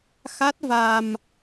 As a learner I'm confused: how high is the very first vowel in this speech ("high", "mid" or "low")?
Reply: low